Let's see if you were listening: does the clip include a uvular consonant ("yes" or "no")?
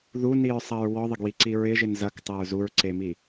no